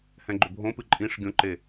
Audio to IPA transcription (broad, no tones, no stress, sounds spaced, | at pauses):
h ɛ̃ ɡ͡ǃ ʏ bʱ õ p ɨ ǃʼ ĩ ʂ ɡʲ õ ǃ e